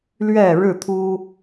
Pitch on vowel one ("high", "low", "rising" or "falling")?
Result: falling